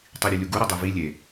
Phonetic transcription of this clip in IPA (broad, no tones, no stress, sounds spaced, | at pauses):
tˤ i ɾʲ e lʲ u ɡ u ɾ i dˤ e v i lʲ e